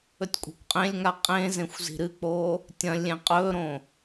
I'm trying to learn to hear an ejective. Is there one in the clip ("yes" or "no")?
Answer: yes